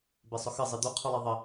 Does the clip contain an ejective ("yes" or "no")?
no